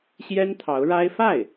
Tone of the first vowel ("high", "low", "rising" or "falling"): high